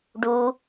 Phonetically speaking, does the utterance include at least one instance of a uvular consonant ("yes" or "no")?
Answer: no